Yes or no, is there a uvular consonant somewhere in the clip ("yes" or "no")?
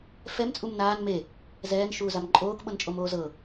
no